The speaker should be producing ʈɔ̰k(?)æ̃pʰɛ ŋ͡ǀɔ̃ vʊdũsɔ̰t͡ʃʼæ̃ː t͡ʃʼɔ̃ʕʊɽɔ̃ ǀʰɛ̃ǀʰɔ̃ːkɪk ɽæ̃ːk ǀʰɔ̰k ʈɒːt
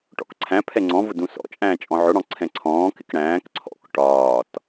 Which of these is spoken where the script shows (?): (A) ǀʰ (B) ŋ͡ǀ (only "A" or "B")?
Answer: A